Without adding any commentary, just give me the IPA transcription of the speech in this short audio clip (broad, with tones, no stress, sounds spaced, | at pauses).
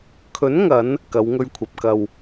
kʰ ɵ˨˥ n ŋ ɐ˨˧ n | k ɐ˨˧ w ŋ ɵ˧ ɥ kʷʰ ɐ˨ p̚ k ɐ˨ w